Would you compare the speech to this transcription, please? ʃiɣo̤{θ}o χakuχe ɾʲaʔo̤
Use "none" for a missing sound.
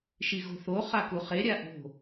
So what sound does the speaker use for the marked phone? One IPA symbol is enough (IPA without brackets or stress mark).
θ